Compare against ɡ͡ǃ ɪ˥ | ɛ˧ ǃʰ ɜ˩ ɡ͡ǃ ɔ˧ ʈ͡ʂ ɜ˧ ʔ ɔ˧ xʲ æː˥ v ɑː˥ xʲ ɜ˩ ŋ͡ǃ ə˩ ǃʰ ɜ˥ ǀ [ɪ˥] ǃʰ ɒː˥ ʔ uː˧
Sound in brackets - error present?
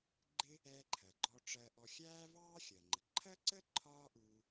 yes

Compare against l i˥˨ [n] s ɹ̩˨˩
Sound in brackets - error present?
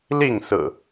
yes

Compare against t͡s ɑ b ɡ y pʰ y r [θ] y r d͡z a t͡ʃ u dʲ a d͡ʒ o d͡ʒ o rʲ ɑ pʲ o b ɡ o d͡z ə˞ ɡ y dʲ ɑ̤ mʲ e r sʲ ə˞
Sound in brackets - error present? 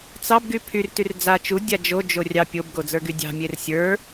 yes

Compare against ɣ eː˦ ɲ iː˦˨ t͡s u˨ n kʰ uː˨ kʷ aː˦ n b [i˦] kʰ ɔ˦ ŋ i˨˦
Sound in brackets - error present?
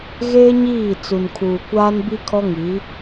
no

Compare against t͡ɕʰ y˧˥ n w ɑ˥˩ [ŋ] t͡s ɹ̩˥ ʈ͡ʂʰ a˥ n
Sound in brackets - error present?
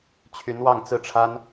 no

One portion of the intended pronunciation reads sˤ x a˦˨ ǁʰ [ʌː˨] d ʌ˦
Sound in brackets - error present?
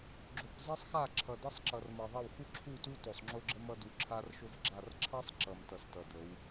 yes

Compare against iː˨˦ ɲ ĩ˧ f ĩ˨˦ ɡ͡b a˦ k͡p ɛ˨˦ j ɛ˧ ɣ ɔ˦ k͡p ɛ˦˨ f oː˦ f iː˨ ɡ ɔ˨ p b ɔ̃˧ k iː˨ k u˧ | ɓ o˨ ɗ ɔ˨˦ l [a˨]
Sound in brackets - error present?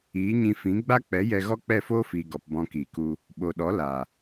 no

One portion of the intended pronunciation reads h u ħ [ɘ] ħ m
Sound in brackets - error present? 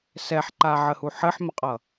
no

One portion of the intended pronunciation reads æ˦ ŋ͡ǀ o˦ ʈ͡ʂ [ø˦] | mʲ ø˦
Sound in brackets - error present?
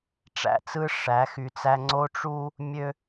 yes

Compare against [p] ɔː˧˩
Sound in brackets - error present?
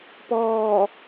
no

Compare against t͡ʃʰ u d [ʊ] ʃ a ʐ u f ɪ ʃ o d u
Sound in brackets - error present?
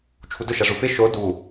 no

